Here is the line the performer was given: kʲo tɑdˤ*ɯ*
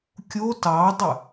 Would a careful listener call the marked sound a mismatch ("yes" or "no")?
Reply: no